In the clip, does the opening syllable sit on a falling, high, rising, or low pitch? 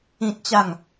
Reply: high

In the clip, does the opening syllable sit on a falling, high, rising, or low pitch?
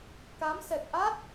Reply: rising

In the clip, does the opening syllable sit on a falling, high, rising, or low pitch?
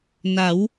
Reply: rising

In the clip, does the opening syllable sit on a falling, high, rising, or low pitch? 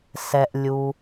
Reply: low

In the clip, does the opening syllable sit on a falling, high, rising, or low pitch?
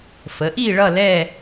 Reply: rising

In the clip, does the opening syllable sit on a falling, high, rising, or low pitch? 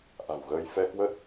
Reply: low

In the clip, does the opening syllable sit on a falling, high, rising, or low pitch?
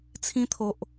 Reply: high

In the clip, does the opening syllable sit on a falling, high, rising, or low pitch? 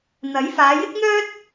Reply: rising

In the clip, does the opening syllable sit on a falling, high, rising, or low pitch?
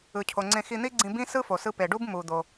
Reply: low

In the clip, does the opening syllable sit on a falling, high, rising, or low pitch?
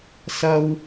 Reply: high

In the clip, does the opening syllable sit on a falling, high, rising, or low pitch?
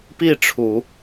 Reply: falling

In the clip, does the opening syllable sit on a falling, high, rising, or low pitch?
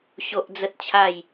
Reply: high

